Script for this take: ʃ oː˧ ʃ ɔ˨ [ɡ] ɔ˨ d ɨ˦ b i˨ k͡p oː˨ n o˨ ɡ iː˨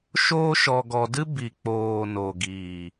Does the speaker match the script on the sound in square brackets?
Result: yes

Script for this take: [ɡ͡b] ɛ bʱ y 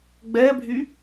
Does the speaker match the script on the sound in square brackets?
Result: yes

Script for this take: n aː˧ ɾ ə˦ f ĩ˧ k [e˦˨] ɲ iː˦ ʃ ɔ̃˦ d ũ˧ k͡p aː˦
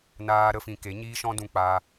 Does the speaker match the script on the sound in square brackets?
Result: no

